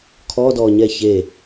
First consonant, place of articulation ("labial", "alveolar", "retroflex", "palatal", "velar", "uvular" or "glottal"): velar